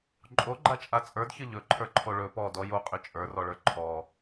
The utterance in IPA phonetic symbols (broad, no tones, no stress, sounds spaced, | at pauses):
ǃʼ o ɡ͡ǃ a t͡ʃʼ a t͡sʼ ə˞ d ç ə ʎ ɵ ǃʰ ə˞ ǃʰ o ɭ ɵ p ɔ d ɔ j o qʼ ʏ t͡ʃʼ ə˞ r ɔ ɭ ə˞ ǃʰ ɔ